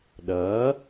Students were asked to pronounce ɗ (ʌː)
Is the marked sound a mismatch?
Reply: no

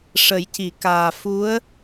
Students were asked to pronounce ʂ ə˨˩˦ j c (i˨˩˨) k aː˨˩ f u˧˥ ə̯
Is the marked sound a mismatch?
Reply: no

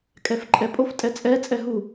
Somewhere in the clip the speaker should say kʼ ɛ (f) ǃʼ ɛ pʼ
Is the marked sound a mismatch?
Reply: no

